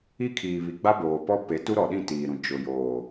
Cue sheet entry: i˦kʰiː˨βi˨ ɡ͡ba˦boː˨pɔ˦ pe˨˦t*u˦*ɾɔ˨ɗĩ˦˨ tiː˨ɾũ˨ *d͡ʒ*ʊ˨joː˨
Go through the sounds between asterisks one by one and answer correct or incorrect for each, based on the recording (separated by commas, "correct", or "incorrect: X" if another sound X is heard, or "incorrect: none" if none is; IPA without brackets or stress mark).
correct, correct